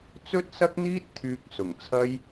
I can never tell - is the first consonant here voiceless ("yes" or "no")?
yes